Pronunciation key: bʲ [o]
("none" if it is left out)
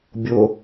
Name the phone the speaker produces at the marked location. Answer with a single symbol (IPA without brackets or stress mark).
o